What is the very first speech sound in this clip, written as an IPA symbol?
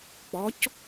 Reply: k͡p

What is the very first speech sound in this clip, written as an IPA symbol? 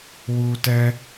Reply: w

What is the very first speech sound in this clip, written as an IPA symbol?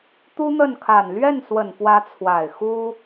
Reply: t̪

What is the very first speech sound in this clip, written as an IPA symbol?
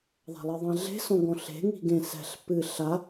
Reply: ðˤ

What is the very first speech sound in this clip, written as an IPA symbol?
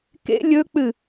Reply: k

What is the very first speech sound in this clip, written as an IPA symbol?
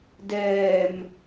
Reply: d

